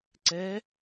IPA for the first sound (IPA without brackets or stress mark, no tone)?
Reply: ǀ